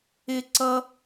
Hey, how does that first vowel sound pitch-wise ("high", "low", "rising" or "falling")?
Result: high